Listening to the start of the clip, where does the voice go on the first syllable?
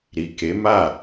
low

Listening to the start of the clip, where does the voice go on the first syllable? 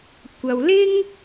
low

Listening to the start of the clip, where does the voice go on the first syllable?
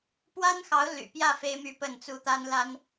high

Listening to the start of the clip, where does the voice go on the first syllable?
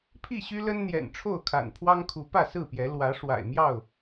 falling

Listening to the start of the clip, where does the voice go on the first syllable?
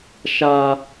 high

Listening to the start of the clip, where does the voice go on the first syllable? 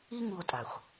high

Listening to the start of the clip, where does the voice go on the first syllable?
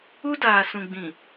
high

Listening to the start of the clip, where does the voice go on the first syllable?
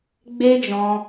high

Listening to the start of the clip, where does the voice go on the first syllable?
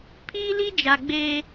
high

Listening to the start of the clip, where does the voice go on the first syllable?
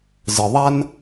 low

